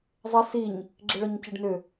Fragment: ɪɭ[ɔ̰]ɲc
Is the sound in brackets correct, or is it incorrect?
incorrect